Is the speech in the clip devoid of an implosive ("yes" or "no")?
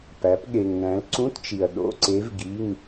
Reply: no